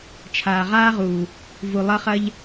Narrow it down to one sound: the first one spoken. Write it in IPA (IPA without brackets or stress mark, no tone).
t͡ʃʰ